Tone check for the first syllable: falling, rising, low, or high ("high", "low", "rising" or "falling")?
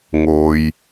low